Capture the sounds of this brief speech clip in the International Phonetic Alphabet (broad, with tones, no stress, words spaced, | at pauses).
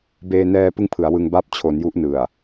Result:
beː˧nɛː˧ pɯ˥˩ŋpʰɯ˩˦a̯wɯ˧ŋba˥˩p̚ t͡ɕʰo˩˦n ju˦˥ʔnɯ˨˩a̯